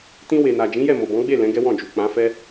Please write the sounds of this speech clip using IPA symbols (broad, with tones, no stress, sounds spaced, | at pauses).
t ĩ˧ w e˨ n a˨ d͡ʒ ĩ˨˦ j ɛ˦˨ m o˨ b ɔ̃˨˦ ɡ͡b e˦˨ l ɛ̃˨˦ ɡ ɛ˦ w ɔ̃˦˨ d͡ʒ u˨ k͡p ã˨˦ f ɛ˦